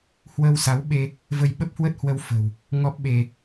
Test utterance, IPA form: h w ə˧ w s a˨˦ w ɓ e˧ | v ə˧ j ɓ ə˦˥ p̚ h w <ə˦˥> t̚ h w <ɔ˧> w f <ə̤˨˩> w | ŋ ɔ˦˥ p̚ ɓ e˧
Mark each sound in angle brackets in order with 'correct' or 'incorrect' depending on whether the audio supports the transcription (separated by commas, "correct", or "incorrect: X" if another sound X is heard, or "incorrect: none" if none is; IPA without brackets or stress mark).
correct, incorrect: ə˧, correct